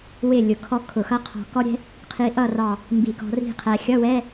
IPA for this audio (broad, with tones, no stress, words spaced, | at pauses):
wɪ˥˨ lʲʊ˧˩kʰɔ˥kʰʊ˧˩˧xʌ˥ qʰɔ̤˧˩kɔ˥ɾʲɛ̤˥ | qʰi˧ʔʌ˥˨rɑ˧˩ | mbi˧˩˧kɔ̤˧ri̤˥˨qʰæ˧ xʲʌ˧˥˧wɛ˧˥˧